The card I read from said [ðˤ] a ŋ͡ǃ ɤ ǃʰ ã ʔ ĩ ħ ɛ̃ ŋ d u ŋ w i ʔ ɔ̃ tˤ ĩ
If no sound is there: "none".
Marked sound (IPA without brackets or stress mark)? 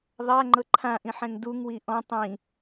ðˤ